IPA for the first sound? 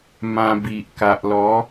m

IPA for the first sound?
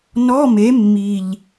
n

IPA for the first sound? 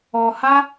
ɔ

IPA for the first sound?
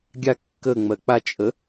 ɡʲ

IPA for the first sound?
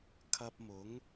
kʰ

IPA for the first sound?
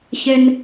ç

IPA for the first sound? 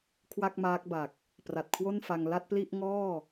kʰ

